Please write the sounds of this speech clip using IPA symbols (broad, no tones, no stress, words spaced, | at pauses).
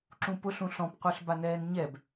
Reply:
ǁũpʊɬũ ɬɔ̃pqʷə˞ɬ banɛːnɲɛb